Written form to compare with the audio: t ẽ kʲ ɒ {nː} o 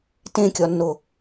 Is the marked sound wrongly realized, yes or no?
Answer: no